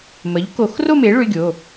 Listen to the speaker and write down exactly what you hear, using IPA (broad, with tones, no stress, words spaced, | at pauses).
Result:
mə˩˥ʎko˨˩˦x ro˥˧me˩˥ ɭʏ˧˥˧ɡʲo˩˧˩